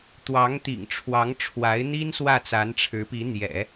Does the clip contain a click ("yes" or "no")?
no